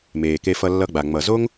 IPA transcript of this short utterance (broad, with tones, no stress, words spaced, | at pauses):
meː˨ ke˧fʌ˧lːʌ˧ɡ͡ba˨ ŋ͡mʌ˨zo˦ŋ